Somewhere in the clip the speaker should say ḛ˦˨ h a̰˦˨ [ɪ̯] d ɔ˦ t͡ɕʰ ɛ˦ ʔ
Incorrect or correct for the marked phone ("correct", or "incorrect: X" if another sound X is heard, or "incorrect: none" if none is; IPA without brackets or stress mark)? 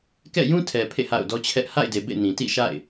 incorrect: ʊ̯